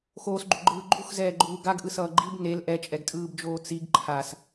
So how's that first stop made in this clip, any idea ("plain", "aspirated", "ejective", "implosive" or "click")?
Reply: click